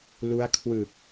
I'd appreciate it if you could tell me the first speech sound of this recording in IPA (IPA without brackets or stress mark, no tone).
l